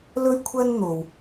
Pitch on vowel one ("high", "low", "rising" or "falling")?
high